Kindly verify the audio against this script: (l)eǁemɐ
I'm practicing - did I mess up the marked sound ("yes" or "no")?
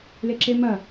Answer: no